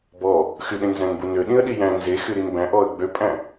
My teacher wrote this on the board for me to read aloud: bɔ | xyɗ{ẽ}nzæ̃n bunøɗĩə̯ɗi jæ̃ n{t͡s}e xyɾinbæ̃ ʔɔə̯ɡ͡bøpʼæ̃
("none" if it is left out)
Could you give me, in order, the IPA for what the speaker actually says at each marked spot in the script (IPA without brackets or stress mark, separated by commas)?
ẽ, z